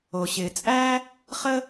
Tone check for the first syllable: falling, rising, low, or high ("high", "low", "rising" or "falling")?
low